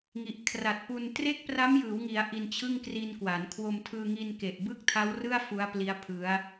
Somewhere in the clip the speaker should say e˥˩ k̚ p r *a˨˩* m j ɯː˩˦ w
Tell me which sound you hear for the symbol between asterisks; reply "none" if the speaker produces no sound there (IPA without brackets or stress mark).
a˦˥